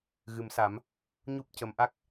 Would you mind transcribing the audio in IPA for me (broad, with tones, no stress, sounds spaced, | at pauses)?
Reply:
ɣ ɨ˨˩˦ m s a˨˩˦ m | ɲ u˦˥ p̚ c ə˨˩˦ m ʔ a˦˥ k̚